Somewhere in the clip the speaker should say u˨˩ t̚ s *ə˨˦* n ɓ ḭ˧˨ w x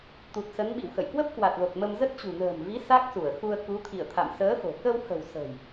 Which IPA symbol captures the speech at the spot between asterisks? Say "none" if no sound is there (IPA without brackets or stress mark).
ə˨˦